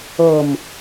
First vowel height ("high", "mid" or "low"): mid